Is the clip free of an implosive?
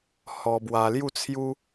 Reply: yes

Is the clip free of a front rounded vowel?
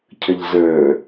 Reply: yes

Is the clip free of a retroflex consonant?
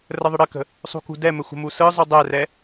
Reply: no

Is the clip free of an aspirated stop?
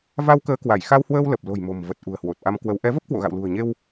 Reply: yes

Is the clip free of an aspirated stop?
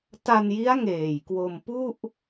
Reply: yes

